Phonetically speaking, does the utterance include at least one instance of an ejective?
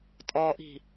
yes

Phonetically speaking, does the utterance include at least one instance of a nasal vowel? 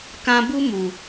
yes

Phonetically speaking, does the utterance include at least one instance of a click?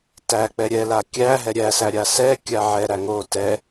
no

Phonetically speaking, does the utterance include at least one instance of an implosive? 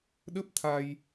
yes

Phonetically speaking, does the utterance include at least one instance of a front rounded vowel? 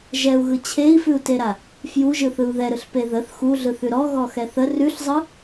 no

